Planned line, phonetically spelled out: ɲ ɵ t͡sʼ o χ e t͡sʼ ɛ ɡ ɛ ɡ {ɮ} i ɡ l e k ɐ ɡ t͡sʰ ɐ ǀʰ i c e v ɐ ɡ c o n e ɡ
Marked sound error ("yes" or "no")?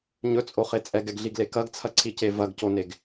no